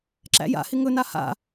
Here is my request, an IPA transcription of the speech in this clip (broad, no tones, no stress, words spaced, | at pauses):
ǁæ̰ja̰hɪ ŋɵna ha̰